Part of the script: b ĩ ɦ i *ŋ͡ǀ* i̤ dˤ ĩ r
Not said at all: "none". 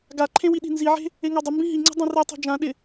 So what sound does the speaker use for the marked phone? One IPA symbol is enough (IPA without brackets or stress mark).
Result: ŋ͡ǀ